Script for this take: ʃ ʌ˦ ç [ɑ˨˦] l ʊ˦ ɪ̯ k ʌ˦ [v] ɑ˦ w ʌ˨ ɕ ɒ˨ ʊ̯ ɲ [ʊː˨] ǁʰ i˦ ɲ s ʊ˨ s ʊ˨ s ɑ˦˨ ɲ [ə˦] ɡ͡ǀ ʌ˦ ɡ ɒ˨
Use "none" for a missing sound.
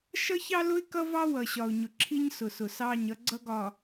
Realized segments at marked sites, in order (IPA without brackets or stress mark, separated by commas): ɑ˦, v, ʊ˨, ʌ˦